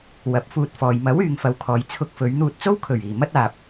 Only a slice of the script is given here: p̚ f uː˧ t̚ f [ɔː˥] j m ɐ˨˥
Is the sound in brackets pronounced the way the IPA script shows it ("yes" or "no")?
no